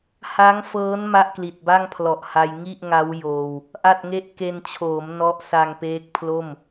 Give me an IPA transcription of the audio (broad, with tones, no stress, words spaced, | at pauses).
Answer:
ha˦˥ŋfɤː˦˥n ma˥˩ʔkli˨˩t̚ ba˥˩ŋpʰlɔ˨˩ʔ ha˧j ŋi˥˩ʔŋa˦˥w joː˧w | ʔa˥˩t̚ŋe˥˩ʔ ke˧nt͡ɕʰoː˩˦m nɔ˥˩ʔ sa˧ŋpeː˦˥k̚pʰlo˥˩m